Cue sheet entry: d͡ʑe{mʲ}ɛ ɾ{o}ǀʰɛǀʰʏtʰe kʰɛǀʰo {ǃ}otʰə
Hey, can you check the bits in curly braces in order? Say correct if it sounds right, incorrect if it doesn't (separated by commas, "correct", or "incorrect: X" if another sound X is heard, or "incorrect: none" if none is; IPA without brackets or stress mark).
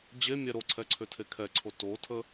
correct, correct, incorrect: t